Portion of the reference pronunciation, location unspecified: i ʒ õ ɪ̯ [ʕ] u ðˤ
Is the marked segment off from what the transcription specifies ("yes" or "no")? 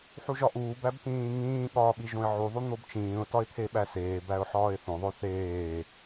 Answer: no